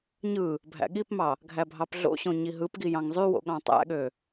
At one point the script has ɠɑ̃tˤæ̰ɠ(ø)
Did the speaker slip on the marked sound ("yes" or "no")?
no